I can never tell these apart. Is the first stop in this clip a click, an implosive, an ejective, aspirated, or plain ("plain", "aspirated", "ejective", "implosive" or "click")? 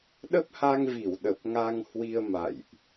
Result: implosive